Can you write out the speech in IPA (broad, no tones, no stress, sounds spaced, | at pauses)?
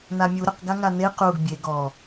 n a mʲ u ɾ ə q ɡ a ŋ a n e q u ɡ bʲ e ɡ ɔ